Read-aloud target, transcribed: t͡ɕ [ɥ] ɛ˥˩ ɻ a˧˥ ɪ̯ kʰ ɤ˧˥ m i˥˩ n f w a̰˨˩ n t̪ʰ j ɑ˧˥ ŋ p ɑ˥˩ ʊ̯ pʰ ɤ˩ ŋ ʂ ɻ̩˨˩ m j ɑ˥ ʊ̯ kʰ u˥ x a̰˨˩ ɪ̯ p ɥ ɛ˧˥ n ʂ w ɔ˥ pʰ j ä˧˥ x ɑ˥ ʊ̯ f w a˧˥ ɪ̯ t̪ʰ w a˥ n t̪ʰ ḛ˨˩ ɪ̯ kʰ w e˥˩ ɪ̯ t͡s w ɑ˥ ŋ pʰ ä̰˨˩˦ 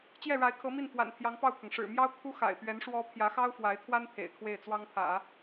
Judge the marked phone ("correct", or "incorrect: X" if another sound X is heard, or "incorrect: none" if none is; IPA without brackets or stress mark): incorrect: j